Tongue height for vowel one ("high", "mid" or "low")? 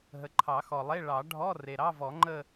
mid